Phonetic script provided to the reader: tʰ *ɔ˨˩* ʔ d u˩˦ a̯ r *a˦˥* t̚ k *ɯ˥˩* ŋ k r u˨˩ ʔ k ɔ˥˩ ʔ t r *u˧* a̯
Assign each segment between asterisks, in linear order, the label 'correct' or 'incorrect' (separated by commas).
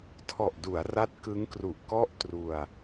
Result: correct, correct, incorrect, correct